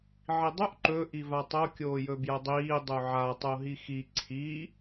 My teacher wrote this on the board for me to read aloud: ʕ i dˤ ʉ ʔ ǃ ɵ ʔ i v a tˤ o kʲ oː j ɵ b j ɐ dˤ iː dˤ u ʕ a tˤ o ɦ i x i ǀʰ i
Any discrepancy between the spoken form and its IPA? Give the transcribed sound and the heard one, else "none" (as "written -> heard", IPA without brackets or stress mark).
none